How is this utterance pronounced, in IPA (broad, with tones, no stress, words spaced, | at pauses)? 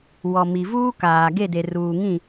wɔ˨mi˨vuː˦ kaː˨ ɡe˦˨de˨ruː˨ŋĩ˦˨